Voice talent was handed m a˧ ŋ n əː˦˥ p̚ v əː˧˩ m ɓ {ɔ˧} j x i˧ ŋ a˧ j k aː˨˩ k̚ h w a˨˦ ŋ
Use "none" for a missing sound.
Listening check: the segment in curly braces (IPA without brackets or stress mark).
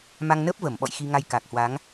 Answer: ɔ̰˧˨